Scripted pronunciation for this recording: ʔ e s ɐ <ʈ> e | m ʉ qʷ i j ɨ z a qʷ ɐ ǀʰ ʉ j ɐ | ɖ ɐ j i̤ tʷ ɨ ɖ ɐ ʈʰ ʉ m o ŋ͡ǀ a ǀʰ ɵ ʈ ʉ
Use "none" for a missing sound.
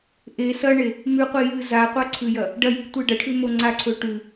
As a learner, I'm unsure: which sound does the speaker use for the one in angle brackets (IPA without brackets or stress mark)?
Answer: ɳ